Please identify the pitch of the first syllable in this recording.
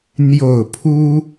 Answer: low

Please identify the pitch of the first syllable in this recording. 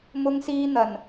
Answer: high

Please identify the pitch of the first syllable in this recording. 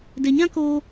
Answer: low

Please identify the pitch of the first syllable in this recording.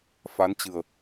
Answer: rising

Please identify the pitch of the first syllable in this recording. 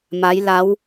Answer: rising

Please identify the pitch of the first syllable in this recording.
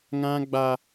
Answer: high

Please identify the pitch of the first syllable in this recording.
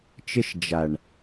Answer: high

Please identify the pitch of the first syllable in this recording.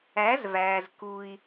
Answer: rising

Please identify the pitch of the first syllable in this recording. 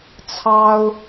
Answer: high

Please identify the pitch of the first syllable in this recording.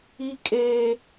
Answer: high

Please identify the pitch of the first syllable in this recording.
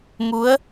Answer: rising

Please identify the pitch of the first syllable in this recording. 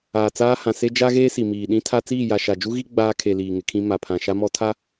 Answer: low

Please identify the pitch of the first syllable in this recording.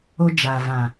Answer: high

